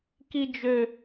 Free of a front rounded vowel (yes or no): no